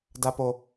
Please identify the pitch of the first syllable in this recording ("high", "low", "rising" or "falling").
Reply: high